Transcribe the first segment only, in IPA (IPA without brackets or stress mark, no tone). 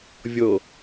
vʲ